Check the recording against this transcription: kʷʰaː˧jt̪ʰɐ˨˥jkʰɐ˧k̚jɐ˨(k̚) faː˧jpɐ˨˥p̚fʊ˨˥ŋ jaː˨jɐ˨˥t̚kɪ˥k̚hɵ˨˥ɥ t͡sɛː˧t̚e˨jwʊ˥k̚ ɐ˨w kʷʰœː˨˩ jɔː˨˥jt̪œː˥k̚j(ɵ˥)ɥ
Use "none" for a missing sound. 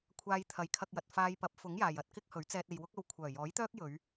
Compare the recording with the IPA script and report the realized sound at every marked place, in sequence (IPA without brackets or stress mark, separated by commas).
t̚, ɵ˨˧